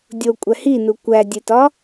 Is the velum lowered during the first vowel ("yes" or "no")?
no